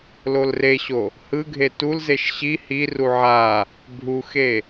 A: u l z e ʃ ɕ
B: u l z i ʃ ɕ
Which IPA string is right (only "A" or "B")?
A